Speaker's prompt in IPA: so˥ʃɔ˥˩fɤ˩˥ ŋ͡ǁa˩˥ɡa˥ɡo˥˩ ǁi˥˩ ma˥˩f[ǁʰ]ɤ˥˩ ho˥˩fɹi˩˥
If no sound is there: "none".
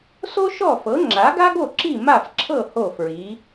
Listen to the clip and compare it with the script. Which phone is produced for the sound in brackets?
ǁʰ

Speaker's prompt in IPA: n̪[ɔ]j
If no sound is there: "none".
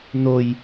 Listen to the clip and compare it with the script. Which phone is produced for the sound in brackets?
o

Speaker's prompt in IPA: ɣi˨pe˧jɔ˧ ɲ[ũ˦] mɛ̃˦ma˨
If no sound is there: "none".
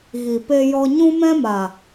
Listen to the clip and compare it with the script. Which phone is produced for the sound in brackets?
ũ˦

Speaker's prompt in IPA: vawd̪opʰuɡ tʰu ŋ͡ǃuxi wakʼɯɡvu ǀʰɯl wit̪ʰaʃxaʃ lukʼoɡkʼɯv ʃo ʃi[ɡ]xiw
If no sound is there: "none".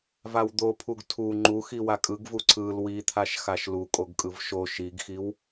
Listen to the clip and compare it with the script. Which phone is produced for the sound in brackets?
ɡ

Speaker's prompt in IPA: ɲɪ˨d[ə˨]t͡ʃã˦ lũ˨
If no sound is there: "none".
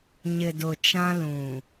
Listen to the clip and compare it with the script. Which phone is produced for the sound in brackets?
ʊ˨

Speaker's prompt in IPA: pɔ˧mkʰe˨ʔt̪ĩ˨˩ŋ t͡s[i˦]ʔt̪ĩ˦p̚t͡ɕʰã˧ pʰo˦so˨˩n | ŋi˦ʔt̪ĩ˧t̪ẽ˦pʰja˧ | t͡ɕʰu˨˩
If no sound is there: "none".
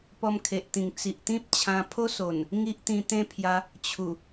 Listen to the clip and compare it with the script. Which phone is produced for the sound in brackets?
i˨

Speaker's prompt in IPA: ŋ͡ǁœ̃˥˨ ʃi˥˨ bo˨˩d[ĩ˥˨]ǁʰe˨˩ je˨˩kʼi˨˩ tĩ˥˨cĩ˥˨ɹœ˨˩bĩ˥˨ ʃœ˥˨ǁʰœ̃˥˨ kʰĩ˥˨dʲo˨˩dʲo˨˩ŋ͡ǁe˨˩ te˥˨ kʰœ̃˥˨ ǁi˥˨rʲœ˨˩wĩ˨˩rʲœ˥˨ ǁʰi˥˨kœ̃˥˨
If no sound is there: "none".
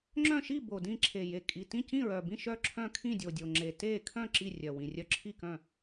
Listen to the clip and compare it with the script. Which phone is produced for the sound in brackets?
ĩ˥˨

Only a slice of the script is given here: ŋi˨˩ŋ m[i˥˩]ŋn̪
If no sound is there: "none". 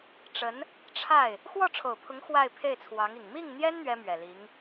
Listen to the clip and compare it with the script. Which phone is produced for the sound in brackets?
i˥˩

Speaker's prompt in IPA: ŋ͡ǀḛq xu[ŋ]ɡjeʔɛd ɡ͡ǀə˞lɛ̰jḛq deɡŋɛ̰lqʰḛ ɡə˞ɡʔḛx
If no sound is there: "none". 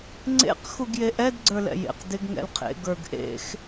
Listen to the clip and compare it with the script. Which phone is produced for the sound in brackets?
none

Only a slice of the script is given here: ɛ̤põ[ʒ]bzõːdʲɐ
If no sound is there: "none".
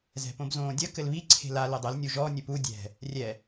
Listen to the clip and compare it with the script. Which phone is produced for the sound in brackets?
none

